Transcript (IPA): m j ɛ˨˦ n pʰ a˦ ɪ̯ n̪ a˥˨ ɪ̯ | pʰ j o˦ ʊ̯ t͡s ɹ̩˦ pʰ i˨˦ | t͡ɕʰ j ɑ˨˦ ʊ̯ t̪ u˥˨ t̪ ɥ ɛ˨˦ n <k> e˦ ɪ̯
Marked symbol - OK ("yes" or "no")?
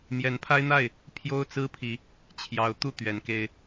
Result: yes